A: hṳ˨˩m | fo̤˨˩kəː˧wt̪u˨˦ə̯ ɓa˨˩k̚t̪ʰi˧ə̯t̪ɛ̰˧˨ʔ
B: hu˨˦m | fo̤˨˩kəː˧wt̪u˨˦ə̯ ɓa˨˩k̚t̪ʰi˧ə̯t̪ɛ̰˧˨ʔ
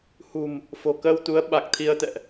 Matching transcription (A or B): A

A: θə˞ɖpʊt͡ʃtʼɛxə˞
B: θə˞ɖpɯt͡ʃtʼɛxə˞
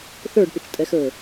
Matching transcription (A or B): A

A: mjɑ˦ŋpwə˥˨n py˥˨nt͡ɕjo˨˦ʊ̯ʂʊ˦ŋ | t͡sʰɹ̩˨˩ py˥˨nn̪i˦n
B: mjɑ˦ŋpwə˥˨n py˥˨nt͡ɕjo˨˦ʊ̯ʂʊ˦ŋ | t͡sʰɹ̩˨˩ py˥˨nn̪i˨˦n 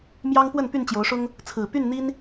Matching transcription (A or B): A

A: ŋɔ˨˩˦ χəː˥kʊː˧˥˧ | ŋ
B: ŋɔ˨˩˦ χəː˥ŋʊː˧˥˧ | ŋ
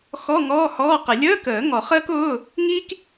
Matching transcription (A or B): A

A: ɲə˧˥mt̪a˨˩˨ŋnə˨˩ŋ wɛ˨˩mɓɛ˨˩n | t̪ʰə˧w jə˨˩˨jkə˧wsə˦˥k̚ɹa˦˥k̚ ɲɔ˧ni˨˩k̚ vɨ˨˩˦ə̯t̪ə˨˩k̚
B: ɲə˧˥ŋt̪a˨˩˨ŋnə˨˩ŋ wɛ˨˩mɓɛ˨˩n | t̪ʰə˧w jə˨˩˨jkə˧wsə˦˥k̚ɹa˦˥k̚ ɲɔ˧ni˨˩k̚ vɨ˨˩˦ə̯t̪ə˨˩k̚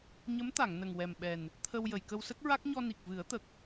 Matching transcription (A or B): A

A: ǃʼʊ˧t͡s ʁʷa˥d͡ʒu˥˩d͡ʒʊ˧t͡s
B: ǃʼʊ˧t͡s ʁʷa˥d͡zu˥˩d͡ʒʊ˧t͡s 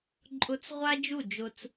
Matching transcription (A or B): A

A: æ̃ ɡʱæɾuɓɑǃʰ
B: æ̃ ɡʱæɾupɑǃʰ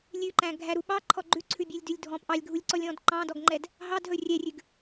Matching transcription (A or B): A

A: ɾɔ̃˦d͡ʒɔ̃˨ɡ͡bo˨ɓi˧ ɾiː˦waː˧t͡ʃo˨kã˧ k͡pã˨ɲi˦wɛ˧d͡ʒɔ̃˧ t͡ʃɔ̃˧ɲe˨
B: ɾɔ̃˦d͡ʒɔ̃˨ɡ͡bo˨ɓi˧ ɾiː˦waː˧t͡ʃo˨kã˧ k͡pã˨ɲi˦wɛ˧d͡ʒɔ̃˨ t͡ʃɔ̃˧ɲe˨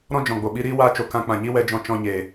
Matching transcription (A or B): A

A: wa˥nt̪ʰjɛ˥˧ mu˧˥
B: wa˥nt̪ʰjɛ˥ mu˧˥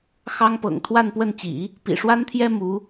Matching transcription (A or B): B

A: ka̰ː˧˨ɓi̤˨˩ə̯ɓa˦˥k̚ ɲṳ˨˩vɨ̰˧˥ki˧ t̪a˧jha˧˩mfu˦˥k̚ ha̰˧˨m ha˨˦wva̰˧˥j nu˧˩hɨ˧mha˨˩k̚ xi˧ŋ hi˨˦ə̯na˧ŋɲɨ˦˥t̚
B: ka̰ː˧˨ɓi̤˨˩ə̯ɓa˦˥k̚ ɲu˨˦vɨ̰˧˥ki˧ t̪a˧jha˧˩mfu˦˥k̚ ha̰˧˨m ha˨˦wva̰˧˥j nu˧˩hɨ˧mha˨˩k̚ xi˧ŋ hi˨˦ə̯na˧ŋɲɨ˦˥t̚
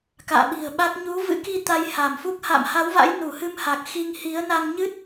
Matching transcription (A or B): B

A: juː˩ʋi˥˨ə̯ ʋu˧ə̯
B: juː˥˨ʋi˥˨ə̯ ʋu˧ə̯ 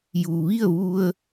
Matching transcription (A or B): A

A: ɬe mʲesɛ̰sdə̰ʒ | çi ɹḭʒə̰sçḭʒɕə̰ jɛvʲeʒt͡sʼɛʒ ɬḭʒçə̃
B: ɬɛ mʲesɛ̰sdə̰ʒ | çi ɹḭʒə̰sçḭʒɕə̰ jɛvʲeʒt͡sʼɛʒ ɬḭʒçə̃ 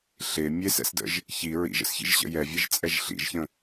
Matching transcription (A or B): A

